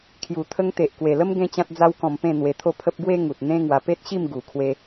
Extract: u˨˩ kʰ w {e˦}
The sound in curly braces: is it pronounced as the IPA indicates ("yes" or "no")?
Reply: no